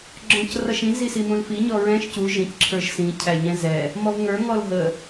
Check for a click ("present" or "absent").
present